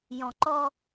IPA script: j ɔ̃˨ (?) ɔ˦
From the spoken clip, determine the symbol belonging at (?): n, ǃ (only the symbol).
ǃ